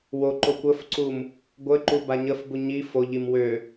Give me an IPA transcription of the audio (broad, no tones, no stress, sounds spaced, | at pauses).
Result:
w o ǃ o kʷ ə f ǀ u m | ɡʷ ə ǃ u b a ɲ ə f b u ɲ i f o ʎ i m w ø